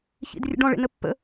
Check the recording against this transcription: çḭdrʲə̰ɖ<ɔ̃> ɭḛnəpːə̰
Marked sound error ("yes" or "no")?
no